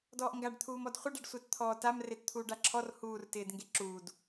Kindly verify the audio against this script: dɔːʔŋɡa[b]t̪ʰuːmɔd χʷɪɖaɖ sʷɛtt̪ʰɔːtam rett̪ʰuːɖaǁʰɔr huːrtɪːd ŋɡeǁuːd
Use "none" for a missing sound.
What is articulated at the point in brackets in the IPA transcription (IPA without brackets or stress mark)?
ɖ